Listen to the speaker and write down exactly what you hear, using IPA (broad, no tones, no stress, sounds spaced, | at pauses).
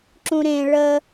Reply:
ǁ ũ ɾ ẽ ɭ ə